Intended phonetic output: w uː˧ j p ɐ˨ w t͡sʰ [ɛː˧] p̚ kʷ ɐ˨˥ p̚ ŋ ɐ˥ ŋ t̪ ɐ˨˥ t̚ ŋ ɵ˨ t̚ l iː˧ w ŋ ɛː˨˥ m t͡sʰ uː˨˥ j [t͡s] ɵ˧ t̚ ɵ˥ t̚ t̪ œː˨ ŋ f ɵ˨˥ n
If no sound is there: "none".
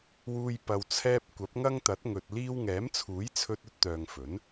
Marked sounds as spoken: ɛː˧, t͡sʰ

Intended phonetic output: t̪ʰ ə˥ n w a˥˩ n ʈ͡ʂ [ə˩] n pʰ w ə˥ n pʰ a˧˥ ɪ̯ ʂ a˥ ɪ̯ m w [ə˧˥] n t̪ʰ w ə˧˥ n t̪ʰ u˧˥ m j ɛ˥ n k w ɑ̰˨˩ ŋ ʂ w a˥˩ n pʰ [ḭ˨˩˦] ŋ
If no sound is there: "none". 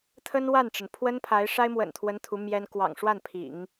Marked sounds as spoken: ə˩, ə̰˨˩, ḭ˨˩˦

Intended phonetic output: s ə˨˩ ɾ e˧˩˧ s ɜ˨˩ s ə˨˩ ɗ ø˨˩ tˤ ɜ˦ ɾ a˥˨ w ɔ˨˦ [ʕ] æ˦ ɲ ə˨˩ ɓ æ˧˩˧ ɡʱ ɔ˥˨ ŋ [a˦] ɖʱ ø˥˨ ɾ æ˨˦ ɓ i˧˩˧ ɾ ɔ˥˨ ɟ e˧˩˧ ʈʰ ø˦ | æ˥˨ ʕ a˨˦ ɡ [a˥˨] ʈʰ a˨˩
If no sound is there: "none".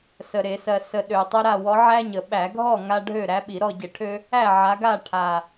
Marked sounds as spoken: ʕ, a˦, a˥˨

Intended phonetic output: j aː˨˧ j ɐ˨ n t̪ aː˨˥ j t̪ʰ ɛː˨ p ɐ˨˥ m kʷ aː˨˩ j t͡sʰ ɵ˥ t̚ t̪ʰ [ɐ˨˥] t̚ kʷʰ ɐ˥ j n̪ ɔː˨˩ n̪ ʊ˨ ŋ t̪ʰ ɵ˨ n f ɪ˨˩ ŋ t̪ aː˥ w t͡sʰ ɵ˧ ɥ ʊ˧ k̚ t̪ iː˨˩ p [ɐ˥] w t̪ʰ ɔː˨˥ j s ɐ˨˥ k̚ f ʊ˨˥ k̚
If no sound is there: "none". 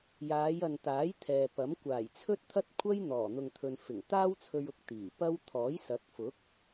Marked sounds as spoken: ɐ˥, ɐ˥

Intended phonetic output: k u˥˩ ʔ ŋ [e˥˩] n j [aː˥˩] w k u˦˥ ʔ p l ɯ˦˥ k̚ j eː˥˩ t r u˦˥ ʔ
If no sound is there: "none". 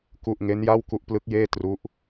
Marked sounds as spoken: e˦˥, a˥˩

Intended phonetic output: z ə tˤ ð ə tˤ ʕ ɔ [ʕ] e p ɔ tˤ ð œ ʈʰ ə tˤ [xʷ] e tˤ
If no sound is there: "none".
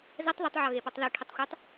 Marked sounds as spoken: ɣ, xʷ

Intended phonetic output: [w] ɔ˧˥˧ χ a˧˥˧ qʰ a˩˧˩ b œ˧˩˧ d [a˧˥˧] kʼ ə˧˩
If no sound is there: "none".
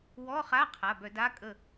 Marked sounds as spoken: w, a˧˥˧

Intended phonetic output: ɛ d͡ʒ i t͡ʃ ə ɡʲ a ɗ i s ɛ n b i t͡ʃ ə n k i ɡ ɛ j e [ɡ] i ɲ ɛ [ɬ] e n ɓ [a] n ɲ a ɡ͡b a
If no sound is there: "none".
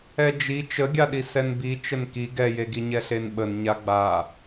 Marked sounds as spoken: ɡ, ɬ, ə

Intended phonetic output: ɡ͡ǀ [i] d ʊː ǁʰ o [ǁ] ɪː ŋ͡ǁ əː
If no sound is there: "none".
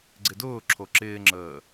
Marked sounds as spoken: ɪ, ǁ

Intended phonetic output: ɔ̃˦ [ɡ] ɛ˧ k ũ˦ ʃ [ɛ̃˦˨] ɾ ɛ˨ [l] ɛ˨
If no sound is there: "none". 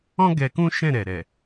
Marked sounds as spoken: ɡ, ɛ̃˦˨, ɾ

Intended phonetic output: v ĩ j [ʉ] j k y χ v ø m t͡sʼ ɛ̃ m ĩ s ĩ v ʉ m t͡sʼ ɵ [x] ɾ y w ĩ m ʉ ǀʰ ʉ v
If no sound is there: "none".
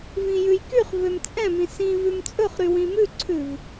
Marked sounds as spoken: ʉ, χ

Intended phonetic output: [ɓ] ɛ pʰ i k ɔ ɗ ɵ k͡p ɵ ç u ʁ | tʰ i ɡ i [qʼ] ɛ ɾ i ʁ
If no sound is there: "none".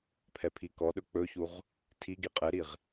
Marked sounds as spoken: pʰ, qʼ

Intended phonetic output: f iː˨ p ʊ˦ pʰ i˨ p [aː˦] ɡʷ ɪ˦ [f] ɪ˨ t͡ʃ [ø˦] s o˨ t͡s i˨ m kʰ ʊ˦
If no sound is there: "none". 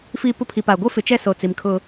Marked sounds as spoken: aː˨, f, ɛ˦

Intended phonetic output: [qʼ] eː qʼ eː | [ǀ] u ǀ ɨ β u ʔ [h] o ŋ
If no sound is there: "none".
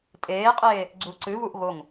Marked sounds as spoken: tʼ, ɡ͡ǀ, ɣ

